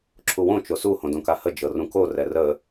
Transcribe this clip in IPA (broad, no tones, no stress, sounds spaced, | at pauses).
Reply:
ǁʰ u w õ t͡ʃ o s u h õ d õ k a h ə d͡ʒ ɤ r ũ k o r ɛ r ə